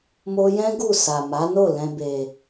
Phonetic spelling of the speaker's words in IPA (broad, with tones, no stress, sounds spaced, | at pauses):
m o˧ j ɛ̃˦ ɡ u˦˨ s a˨ m a˨˦ n o˦˨ l ɛ̃˨ b e˨